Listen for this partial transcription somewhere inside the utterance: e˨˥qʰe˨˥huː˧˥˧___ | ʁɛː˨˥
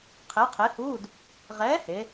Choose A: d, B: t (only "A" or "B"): A